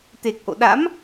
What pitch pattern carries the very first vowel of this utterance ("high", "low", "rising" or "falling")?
low